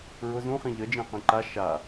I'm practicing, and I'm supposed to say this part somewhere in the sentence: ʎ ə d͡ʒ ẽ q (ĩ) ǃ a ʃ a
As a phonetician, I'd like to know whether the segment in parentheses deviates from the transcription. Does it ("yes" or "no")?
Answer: no